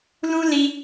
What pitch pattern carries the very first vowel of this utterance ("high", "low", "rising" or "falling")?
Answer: high